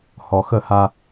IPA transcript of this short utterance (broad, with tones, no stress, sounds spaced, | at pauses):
h ɔ˨ x ə˦˨ h a˦